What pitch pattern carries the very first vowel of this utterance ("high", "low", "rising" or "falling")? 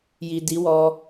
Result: low